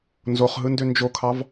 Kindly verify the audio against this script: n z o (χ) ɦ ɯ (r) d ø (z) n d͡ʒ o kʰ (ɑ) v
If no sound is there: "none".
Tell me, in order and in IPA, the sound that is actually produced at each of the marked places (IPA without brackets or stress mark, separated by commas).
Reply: χ, n, none, ɑ